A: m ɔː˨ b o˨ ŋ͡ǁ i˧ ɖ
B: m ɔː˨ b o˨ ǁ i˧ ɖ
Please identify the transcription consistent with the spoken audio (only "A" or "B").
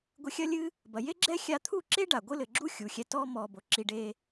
B